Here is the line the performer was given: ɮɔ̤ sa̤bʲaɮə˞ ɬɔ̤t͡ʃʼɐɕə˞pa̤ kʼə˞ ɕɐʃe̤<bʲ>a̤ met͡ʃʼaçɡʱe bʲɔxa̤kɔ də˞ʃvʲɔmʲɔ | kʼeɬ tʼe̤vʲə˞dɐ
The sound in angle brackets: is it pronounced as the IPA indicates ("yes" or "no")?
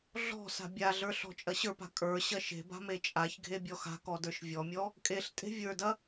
no